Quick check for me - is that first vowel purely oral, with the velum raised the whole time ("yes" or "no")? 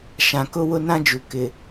no